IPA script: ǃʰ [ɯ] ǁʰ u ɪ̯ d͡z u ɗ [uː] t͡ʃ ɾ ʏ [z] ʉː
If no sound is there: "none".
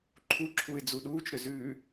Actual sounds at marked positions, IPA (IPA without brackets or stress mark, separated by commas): u, uː, z